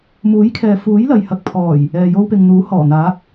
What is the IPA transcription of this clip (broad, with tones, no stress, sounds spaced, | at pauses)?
m uː˨˥ j kʰ ɛː˨ f uː˨˥ j l ɐ˨ j h ɐ˨ k̚ pʰ ɔː˨˩ j | ɛː˨ j o˧ w p ɪ˨ ŋ n̪ uː˨˥ h ɔː˨˩ n̪ aː˨˥ k̚